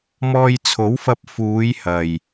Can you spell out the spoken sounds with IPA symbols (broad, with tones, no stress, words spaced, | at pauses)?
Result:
mɔː˧jt͡sʰo˨˥wfɐ˧p̚ fuː˨˧jhɐ˨j